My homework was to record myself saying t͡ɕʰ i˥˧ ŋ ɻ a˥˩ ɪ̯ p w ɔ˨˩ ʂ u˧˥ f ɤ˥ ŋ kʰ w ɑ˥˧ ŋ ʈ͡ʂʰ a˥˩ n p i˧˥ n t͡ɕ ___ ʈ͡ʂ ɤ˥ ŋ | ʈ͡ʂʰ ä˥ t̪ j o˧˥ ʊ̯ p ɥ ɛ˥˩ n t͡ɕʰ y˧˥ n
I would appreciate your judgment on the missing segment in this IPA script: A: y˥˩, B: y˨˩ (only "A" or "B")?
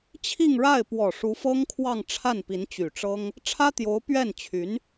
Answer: B